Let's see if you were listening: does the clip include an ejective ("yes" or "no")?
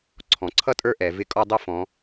yes